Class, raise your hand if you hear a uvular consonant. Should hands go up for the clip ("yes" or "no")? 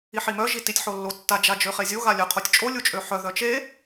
yes